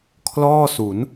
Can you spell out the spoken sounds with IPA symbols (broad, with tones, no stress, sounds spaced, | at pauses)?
kʰ l ɔː˥˩ s u˩˦ n